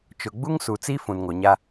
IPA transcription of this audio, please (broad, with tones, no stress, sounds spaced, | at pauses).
t͡ʃ ʊ˨ ɡ͡b u˦ ŋ s u˨ t͡s i˦ f ũ˨ n ŋ o˨ ɲ a˦